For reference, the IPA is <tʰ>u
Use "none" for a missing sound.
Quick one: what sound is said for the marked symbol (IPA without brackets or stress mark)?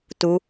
t